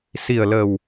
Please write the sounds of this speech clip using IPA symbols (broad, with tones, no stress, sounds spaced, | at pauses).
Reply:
s i˨˩ ə̯ l ə˨˩ w